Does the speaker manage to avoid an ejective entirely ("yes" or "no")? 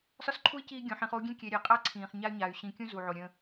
no